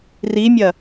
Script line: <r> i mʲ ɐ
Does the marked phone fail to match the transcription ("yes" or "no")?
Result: no